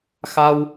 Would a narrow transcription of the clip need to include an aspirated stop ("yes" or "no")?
no